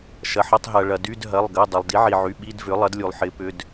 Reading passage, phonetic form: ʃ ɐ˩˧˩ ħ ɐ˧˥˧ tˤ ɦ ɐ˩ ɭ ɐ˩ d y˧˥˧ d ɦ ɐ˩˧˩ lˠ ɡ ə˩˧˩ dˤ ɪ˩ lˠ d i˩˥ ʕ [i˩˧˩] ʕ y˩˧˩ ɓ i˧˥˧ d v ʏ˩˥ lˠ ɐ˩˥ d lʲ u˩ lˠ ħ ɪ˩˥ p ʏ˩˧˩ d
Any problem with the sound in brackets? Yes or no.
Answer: yes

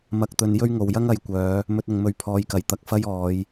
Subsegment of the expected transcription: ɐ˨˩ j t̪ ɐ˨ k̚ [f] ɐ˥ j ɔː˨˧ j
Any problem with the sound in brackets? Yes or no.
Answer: no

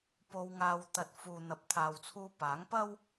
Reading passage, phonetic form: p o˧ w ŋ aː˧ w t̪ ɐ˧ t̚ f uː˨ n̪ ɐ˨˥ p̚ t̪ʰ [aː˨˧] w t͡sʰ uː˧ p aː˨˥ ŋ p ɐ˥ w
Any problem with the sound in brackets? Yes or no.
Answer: yes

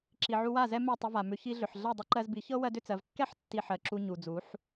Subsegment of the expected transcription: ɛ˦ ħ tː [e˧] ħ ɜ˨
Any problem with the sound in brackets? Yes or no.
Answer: yes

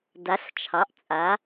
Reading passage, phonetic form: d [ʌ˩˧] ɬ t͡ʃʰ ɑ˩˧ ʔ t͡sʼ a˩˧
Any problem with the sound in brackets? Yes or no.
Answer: yes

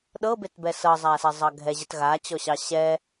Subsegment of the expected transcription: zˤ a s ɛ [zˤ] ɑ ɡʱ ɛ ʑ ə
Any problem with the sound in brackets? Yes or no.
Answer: no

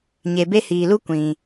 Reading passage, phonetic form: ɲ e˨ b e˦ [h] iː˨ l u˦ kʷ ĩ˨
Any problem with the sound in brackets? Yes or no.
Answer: no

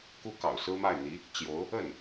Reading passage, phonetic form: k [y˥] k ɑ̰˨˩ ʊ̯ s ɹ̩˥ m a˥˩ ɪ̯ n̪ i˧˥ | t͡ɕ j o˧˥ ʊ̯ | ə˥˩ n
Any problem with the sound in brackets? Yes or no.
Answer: yes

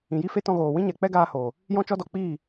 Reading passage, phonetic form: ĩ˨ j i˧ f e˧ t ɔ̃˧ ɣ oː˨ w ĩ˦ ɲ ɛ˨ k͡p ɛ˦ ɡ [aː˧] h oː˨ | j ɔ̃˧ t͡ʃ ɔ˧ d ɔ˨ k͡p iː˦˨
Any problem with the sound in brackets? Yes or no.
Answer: no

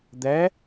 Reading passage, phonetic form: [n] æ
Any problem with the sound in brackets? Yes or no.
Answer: yes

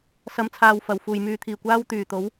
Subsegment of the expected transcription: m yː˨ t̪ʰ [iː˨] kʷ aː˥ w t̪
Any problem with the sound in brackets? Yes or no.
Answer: yes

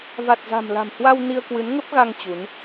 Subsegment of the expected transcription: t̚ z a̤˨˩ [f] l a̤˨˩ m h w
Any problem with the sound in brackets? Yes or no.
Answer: yes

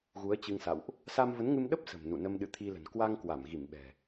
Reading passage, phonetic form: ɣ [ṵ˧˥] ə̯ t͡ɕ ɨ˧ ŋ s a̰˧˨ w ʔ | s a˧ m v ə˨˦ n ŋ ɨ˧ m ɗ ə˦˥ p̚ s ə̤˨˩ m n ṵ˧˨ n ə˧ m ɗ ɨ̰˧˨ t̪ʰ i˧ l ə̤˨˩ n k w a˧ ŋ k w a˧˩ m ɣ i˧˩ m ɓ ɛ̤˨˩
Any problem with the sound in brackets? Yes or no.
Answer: yes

